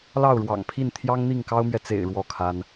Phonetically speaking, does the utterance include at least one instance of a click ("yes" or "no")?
no